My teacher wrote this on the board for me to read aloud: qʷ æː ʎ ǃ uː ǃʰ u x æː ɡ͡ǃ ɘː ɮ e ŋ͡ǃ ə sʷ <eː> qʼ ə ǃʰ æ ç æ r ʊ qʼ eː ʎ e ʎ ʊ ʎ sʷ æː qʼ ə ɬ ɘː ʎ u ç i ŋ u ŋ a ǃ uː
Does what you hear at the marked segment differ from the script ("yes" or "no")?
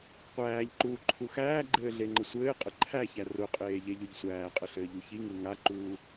yes